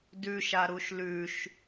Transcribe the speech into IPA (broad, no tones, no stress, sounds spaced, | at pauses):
d ʉ ʃ a ɾ u ʃ l ʉ ʃ